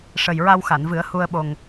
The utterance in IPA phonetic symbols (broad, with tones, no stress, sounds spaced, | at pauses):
ʂ ə˨˩ j ɹ a˧ w x a˨˩˨ n v ɨ˨˩˦ ə̯ h u˧ ə̯ ɓ o˨˩ ŋ